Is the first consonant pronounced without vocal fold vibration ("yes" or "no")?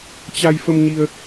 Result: yes